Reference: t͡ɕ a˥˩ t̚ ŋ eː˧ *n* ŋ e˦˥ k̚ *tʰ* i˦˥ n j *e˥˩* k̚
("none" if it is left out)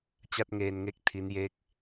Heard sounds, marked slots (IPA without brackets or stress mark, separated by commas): n, tʰ, e˥˩